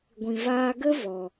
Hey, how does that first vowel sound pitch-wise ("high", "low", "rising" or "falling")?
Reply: low